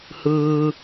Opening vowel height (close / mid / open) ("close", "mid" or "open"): close